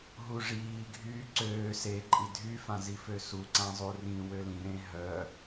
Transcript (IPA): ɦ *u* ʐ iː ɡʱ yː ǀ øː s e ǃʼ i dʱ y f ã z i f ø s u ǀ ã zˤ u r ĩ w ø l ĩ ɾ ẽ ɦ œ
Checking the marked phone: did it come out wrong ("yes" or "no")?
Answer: no